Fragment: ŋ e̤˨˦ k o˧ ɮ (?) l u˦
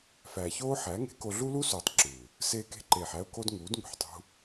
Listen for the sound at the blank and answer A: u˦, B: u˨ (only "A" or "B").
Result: A